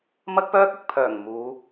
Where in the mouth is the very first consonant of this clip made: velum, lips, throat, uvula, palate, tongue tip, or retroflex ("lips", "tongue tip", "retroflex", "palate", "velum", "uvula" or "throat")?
lips